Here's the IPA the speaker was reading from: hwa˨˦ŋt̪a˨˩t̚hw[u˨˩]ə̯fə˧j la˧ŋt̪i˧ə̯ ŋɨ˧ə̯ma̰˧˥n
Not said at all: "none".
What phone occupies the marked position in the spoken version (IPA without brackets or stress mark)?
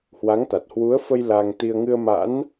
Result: u˨˦